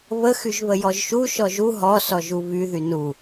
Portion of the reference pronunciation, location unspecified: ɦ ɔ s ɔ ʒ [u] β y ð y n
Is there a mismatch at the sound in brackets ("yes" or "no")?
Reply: no